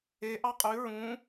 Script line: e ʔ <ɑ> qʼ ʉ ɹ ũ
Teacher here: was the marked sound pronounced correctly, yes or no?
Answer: yes